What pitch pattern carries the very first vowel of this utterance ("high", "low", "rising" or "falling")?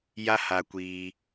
high